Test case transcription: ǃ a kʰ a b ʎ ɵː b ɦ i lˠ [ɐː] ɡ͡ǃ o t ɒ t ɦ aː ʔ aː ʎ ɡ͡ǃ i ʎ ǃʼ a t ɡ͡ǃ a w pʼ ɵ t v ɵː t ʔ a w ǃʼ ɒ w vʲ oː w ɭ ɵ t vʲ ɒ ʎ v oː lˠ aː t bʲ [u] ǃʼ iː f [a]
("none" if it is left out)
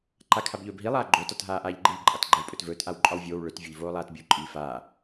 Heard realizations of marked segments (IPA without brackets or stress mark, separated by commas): aː, u, aː